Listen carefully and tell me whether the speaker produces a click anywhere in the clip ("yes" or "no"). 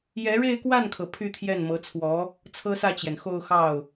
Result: no